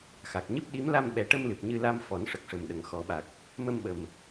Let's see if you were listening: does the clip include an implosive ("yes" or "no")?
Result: yes